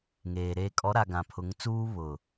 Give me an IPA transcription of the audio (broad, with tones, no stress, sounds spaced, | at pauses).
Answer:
ŋ eː˨ ɾ eː˨ kʼ ɔ˨˦ ɾ a˨ ɡ ã˨ pʰ ʊ˨˦ ŋ t͡s uː˦ β ʊ˨